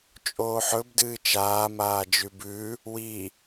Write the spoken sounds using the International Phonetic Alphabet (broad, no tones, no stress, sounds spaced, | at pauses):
t͡ʃʼ oː ħ ɵ b d ɨː t͡ʃ aː m aː d͡ʒ ʉ b ʉ | w i